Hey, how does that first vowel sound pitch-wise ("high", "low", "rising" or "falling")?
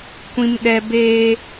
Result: high